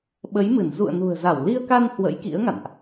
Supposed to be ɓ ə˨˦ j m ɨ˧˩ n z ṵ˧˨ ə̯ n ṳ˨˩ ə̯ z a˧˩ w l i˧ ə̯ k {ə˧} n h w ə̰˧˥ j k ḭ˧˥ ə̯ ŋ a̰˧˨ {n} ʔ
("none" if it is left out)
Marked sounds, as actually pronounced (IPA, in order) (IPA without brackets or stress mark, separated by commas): a˧, n